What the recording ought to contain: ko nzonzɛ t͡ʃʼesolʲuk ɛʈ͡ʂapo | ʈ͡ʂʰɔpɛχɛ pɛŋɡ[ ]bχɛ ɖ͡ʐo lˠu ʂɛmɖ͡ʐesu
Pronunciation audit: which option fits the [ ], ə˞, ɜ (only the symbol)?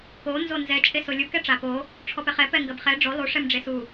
ɜ